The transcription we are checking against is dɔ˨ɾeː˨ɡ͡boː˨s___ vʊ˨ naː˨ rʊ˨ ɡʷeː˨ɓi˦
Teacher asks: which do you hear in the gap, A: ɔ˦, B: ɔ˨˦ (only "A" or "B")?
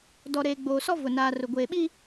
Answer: A